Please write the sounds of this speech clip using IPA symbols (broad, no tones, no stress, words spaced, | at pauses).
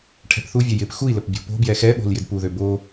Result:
ʈʰɛ̤pθuvʲɛ jɪp xui̯ləp bʲo̤po̤bjɛ xɛɓo̤l jɪdpuðø bo